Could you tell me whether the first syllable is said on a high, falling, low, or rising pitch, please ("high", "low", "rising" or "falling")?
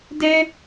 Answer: high